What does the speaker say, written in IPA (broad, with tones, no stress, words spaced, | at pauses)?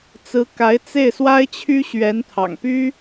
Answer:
t͡sɹ̩˧˥ka˧˥ɪ̯t͡se˥˩ɪ̯ swa˥ɪ̯t͡ɕʰy˥ ɕɥɛ˧˥nt̪ʰɑ̰˨˩ŋ py˥